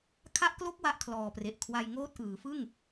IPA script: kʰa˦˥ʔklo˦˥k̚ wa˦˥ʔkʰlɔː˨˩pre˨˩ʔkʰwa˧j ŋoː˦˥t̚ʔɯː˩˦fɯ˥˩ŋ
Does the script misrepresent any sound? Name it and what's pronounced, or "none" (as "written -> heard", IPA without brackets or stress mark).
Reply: none